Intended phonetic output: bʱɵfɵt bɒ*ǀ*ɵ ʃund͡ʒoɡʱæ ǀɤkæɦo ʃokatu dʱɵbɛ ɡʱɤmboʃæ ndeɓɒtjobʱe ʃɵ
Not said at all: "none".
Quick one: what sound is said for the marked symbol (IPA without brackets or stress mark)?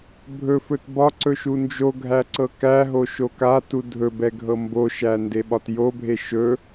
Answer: ǀ